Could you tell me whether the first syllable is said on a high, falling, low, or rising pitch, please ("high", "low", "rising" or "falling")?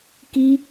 high